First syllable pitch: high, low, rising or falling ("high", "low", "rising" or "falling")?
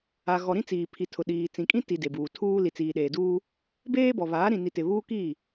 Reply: low